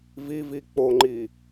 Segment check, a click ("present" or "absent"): present